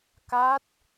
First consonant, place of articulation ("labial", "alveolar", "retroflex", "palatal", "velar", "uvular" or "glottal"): velar